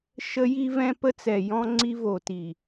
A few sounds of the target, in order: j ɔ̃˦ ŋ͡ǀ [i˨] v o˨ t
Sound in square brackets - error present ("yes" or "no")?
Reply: yes